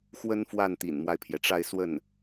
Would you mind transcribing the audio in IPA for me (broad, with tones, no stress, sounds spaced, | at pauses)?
x w ə˥ n f w a˥˩ n t̪ ḭ˨˩ n m w a˦ ɪ̯ pʰ j ɛ˩ ʈ͡ʂ a˥˧ ɪ̯ s w ə˥˩ n